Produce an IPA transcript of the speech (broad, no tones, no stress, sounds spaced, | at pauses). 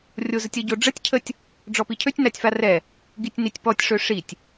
rʲ o z ə tʲ ə ɟ o ɖ͡ʐ ə tʲ cʰ ə tʲ | ɖ͡ʐ ɔ p i cʰ ø tʲ n a tʲ f a r ɛ | ɡ i tʲ n i tʲ p ɔ tʲ ʂ ø ʂ i tʲ